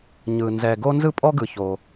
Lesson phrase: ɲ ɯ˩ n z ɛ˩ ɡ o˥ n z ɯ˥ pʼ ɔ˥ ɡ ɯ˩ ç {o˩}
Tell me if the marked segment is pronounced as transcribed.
yes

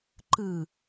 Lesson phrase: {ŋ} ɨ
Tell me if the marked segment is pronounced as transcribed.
no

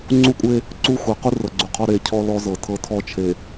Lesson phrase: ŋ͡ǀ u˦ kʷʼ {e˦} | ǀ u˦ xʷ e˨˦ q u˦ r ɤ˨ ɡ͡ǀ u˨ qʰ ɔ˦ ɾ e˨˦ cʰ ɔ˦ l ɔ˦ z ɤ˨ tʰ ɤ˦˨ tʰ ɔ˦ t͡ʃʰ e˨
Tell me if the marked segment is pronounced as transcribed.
yes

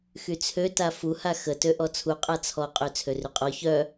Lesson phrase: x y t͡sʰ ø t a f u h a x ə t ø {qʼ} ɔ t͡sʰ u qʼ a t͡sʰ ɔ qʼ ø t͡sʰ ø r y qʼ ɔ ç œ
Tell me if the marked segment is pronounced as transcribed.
no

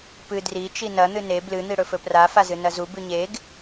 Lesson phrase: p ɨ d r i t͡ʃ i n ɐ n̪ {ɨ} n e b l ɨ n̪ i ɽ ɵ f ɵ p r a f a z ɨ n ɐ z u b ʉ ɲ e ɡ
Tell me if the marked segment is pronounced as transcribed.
yes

